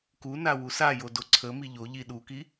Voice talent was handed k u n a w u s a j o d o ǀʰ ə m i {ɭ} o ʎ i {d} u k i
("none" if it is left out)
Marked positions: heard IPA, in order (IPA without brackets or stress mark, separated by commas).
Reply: ʎ, ɗ